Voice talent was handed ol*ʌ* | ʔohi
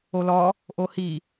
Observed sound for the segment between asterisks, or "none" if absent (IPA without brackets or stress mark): ɔ